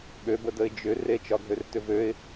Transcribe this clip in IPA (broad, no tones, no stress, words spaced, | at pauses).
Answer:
ɓøbədəɪ̯ d͡ʒʏ ret͡ʃɒɡʱørtʏ vøɪ̯